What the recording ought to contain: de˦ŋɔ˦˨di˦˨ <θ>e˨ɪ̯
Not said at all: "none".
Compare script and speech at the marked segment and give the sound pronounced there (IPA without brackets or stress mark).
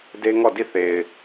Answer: θ